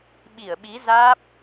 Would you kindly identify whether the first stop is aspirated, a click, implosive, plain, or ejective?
implosive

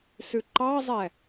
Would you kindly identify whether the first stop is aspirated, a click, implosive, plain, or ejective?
click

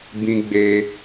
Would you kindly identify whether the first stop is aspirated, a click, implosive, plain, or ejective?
plain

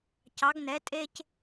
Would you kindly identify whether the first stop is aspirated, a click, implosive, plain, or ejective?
plain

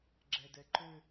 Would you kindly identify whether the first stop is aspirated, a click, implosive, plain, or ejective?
click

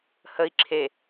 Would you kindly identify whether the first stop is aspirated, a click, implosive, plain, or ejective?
click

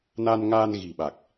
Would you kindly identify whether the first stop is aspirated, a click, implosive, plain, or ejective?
implosive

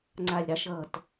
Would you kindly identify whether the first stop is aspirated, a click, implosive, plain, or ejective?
click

